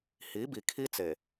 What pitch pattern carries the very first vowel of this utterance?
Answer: rising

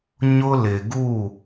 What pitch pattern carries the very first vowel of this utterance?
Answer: high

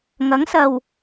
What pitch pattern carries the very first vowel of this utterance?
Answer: rising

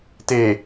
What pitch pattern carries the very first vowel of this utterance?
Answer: low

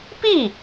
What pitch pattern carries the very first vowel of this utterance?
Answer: falling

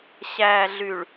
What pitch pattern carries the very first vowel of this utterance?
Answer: low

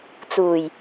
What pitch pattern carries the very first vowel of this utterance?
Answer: low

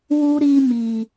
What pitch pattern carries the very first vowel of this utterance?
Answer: high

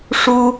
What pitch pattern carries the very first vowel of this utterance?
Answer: high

